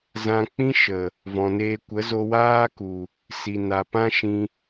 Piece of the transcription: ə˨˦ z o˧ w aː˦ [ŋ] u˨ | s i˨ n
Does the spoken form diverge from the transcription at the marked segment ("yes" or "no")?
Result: yes